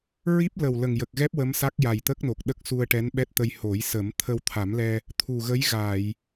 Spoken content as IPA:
ɹ i˦˥ p̚ l ə˨˩ w l ə˨˩ ŋ j ə˨˩ k̚ ɣ ɛ˦˥ p̚ w ə˧˥ m s a˦˥ k̚ j a˨˩ j t̪ ə˦˥ k̚ n o˨˩ k̚ ɗ ə˦˥ k̚ s u˧ ə̯ ʈ ɛ˧˥ n ɓ ɛ˦˥ t̚ t̪ ə˧ j h o˨˩˦ j s ə˨˩˦ m t̪ʰ ə˧ w t̪ʰ a˨˩˦ m l ɛ˧ | t̪ʰ u˨˩ ɣ ə˧˥ j ɣ a˨˩˨ j

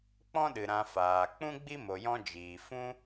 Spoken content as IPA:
k͡p ɔ̃˦ ɗ ɨ˨ ɾ ã˧ f aː˨ k͡p ũ˦ ɡ͡b i˦ m o˧ j ɔ̃˦ d͡ʒ iː˨ f ũ˦

